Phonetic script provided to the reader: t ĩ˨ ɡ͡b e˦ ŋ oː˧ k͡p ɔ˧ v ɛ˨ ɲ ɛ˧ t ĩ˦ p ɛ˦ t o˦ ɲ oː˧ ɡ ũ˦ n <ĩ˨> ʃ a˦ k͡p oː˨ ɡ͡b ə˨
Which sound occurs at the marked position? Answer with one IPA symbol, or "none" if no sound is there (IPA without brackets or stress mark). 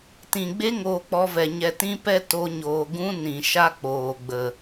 ĩ˨